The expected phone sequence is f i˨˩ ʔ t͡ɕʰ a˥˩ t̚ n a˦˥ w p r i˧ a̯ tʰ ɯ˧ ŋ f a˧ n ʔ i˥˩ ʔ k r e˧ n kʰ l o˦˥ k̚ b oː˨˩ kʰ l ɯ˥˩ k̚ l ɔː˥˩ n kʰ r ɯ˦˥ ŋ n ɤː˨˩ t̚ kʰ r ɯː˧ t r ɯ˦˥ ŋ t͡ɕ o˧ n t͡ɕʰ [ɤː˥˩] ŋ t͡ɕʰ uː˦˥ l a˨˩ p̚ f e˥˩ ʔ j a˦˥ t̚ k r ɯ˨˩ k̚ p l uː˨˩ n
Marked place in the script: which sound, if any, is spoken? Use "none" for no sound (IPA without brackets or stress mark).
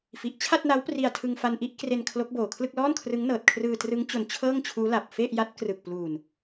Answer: ɤː˥˩